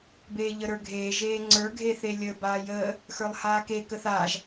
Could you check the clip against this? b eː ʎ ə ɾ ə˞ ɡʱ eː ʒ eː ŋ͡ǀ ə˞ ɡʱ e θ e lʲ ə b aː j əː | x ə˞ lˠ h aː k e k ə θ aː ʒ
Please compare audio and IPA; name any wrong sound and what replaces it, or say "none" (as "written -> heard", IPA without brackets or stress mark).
none